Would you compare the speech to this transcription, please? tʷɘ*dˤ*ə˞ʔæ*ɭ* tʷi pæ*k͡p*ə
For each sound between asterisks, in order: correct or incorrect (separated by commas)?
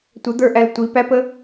incorrect, incorrect, incorrect